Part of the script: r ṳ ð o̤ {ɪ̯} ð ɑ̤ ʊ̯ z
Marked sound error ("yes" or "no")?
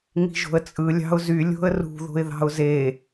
no